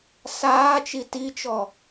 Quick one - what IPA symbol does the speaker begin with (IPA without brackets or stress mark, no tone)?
s